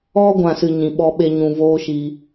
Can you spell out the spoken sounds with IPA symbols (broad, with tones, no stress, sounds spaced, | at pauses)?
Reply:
ɔ˦ ɡʷ ã˧ s ɨ˧ ɲ ĩ˨ ɓ ɔ˧ ɓ e˧ ɲ ũ˨ v oː˦ ʃ i˧